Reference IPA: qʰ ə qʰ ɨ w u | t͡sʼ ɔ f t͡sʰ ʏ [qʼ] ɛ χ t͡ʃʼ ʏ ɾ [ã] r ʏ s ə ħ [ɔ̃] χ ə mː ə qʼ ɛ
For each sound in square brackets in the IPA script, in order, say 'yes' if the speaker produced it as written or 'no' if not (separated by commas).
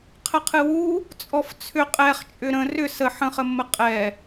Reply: yes, no, no